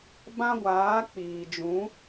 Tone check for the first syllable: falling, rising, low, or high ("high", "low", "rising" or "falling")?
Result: high